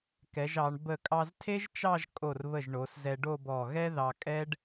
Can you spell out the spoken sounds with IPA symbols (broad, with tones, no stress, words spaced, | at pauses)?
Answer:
kɛ˩˧ʒɑ˩˧ɳ bə˧˩kʼɑ˧ztʰe˥ʒt͡ʃɑ˥˧ʒ kʼo˧˩rβə˧˩ʒɳo˩˧s zɛ˧ɖo˥˧bɔ˧˩ ɣɛ˥ðɑ˧kʼɛ˥ɖ